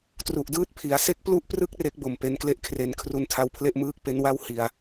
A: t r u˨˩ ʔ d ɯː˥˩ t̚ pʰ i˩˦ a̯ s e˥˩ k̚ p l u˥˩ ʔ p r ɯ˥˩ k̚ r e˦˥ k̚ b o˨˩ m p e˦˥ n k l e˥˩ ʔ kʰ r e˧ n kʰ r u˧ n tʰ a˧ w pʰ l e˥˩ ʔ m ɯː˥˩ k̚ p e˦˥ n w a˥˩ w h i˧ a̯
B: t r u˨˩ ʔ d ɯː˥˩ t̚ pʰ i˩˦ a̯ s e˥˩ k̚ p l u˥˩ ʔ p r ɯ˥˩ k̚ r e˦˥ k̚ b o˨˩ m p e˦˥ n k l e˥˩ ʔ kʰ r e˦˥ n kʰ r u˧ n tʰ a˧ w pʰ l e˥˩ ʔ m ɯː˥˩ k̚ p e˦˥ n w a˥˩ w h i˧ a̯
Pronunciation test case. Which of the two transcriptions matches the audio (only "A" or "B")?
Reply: B